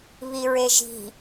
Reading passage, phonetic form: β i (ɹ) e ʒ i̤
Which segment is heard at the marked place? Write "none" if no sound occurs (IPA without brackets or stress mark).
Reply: ɹ